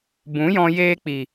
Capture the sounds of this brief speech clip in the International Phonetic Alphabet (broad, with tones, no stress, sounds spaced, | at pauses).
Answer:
b ũ˨˦ j ɔ̃˧ j eː˧ k͡p i˨